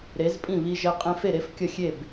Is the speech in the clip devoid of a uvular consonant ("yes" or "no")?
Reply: no